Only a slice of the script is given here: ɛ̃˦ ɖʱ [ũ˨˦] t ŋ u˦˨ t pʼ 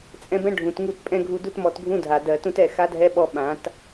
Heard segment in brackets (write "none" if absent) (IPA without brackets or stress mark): ũ˨